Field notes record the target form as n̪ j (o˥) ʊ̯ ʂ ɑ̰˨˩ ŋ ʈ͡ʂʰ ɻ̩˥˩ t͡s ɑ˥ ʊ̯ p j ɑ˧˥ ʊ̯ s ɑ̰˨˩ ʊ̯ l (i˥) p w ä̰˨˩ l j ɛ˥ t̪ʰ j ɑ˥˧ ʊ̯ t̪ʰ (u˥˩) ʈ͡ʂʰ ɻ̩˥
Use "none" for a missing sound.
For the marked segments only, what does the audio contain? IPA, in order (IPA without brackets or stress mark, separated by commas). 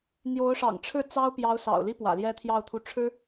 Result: o˧˥, i˥, u˥˩